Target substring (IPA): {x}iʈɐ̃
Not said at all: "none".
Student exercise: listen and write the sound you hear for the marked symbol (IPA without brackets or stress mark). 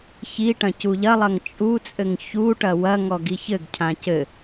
ç